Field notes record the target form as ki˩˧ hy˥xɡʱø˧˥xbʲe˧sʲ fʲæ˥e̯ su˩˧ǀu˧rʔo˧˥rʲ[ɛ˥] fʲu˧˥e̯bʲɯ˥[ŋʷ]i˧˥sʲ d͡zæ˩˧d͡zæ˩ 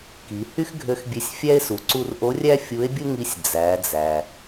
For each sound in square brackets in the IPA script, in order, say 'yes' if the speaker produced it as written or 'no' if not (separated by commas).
no, no